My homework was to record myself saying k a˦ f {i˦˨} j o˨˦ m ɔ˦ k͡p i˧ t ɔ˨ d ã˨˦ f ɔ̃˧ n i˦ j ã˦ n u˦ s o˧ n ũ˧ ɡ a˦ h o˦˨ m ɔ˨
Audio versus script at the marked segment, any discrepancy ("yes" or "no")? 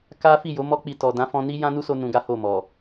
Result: no